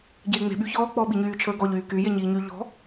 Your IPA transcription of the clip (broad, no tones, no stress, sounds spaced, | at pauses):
ɟ eː ŋ͡m e̤ ɓ y ç ɔː k͡p ɔː ɓ i ɲ yː t͡ʃʰ əː ɡ ɔ ʎ yː k y j e ɲ iː ɲ y ʎ ɔ̤